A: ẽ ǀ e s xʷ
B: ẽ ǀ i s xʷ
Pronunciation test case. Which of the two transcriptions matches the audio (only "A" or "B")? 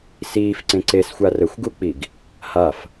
A